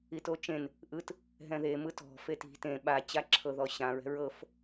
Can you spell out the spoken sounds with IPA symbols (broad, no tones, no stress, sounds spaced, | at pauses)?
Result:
i t o t͡ʃ ẽ n | ʔ ɯ t | ɦ ɛ̃ ð e m ɯ t ɔ̤ f e t i̤ t ẽ ɓ a t͡ɕ a ǁʰ ɤ ð ɔ ɕ ã ɹ ɛ̤ ɹ ɤ f